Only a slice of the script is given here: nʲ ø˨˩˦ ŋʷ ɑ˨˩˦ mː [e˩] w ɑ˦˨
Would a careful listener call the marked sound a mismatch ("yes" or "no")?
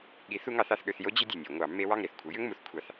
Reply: yes